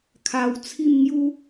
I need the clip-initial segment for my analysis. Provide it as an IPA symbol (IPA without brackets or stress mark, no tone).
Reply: kʰ